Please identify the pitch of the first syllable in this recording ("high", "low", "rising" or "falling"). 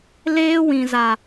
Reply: high